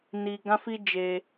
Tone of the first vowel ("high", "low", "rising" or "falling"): high